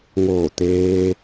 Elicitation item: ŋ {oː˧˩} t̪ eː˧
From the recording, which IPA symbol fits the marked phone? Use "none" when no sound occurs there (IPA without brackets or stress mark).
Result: oː˧˩